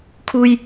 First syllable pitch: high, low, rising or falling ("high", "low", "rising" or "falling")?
low